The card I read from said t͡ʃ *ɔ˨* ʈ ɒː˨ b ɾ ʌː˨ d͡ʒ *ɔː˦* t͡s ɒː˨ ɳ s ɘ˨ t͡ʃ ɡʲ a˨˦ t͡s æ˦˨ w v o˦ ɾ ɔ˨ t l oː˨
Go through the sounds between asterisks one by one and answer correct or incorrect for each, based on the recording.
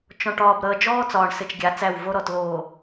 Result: incorrect, correct

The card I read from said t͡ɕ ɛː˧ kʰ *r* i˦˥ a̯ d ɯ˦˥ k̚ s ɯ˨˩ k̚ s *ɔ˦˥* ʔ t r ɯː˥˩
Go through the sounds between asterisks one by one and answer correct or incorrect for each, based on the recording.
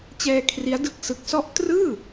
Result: correct, correct

